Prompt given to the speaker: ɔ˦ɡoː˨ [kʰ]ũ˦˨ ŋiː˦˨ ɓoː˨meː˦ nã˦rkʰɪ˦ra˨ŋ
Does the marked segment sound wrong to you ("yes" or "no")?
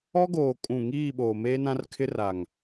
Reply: yes